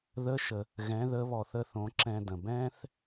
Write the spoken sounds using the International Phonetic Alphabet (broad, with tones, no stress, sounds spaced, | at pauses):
ð ə˧˥ ʃ ə˩ | ɣ ɛ̃˩˧ ð ə˩˧ β ɔ˩ θ ə˧ θ õ˩˧ ǁ ɛ̃˧ d ə̃˩ b ɛ̃ː˥ θ